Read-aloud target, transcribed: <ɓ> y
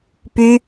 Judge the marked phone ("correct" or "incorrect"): incorrect